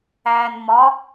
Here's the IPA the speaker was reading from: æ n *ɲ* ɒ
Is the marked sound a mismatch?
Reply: yes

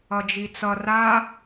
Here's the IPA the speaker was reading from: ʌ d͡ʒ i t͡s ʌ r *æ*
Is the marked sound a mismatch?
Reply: yes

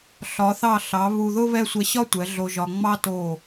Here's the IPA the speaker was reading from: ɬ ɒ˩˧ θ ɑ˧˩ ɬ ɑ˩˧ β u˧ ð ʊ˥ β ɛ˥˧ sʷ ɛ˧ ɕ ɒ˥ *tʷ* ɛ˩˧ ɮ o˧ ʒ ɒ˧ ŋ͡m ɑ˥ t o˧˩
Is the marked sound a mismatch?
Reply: no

